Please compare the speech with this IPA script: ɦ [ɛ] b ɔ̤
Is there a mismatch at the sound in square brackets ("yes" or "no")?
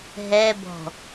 no